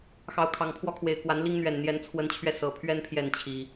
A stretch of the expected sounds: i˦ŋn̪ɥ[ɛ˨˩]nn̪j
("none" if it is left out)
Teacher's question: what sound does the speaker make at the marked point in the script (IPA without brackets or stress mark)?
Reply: ɛ˨˩